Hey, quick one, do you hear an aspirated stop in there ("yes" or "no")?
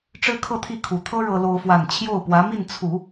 yes